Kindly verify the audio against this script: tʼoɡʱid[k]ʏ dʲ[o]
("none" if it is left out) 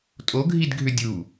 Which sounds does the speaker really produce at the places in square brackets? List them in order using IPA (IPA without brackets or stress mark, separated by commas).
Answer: ɡʱ, u